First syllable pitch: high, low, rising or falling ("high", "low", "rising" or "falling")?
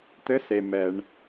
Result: rising